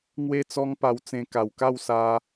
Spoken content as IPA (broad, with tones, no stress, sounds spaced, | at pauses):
ŋ w e˥˧ t͡s ɔ˦ ŋ p a˧ w t͡s ẽ˧ k a˨˩ w k a˥˧ w s a˧